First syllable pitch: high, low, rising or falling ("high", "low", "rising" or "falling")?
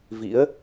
rising